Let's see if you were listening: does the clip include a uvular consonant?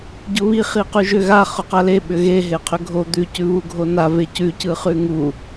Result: yes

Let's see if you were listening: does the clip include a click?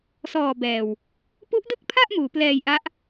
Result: no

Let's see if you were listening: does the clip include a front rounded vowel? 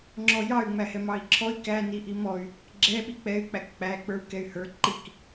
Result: yes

